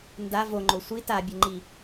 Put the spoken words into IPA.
nda voŋ͡ǃo sʷi tabʲɘŋ͡ǃi

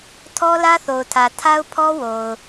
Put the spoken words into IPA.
tʰɔ˦lä˦θo˨ʊ̯tʰä˨ tʰa˦ʊ̯pʰɔ˦wo˨ʊ̯

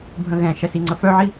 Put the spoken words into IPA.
bʱə̃ɣɛ̃ʃɛs iŋ͡ǀəfœʕi

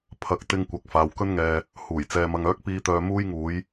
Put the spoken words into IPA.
pʰɐ˨˥k̚t̪ɪ˧ŋkʷɐ˨k̚faː˨w kɵ˧nŋɛː˨ | huː˨˩jt͡sɛː˨mɐ˨ŋ œː˨˥k̚piː˨˧t̪œː˨ muː˧jŋuː˨˧j

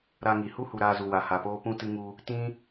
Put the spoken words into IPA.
ɾa˧ŋi˨ hu˦hu˨ ɾaː˧zu˨ wa˨ha˨poː˦ pũ˧tɨ˧ŋu˧ | tĩ˦

